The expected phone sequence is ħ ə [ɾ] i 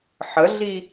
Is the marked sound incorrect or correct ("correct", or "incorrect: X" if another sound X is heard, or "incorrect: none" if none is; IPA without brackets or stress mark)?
incorrect: ɮ